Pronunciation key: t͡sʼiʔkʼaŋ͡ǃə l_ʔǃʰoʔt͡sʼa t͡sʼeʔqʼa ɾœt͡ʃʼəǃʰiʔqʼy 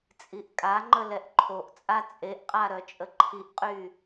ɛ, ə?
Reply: ɛ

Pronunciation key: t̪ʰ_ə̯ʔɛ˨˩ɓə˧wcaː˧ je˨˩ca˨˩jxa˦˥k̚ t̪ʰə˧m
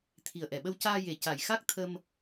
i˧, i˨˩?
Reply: i˨˩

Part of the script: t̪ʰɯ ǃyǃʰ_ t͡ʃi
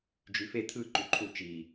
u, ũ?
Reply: u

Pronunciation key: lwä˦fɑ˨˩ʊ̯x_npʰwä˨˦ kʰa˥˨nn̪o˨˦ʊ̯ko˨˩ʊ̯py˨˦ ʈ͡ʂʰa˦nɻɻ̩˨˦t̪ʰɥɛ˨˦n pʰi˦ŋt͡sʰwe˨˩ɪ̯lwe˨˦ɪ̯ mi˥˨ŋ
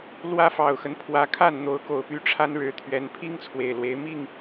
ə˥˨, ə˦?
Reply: ə˦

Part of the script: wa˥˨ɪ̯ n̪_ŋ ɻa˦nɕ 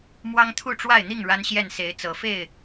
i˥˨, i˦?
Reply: i˥˨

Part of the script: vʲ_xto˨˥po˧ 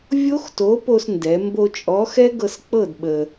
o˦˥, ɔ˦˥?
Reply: o˦˥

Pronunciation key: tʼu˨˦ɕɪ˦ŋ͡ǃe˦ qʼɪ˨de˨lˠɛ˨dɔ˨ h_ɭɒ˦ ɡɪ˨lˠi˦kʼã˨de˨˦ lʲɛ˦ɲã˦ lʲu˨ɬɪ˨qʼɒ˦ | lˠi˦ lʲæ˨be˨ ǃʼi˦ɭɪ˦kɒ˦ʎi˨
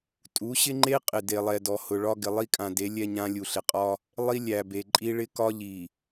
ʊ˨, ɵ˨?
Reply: ʊ˨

